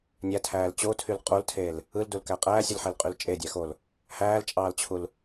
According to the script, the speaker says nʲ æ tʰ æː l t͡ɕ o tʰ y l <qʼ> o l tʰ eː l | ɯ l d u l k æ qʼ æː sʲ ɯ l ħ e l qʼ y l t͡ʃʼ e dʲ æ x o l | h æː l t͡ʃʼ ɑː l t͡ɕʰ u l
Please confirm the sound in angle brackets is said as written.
yes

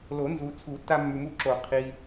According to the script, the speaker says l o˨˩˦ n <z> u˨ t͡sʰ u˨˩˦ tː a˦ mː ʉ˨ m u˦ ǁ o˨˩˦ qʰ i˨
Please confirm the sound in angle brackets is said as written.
yes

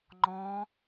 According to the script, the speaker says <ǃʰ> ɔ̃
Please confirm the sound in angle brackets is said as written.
no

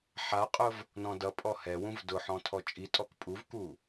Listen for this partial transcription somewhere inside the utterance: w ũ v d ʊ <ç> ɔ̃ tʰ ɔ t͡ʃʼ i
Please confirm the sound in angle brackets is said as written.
no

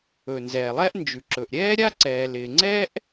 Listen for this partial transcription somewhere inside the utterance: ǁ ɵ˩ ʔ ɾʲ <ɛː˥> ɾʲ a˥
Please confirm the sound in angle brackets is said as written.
yes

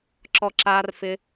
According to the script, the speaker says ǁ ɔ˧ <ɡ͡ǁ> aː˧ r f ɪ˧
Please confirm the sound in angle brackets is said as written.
no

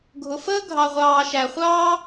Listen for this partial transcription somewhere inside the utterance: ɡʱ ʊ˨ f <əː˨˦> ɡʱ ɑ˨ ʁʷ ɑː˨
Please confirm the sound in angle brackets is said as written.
no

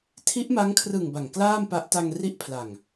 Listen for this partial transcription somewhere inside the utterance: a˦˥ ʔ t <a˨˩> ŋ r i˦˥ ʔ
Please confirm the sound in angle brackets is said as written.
no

